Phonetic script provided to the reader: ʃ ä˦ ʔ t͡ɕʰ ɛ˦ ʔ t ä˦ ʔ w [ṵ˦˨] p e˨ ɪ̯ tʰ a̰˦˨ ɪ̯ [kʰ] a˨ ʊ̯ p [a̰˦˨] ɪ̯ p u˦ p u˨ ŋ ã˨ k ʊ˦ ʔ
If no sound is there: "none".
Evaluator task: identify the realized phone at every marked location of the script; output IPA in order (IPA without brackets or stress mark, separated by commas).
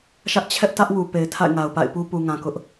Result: u˨, ŋ, a̰˦˨